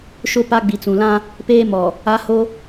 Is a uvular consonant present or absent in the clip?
absent